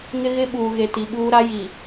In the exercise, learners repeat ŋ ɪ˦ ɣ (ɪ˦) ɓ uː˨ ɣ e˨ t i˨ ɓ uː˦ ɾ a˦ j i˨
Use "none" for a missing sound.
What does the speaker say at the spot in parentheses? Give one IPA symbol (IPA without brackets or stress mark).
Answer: ɪ˦